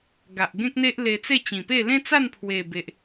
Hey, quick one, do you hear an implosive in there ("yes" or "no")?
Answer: no